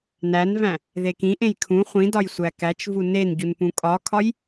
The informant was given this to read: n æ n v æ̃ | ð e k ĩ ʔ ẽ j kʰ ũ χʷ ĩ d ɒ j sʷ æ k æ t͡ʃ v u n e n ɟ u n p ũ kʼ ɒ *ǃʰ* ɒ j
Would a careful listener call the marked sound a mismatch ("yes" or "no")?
yes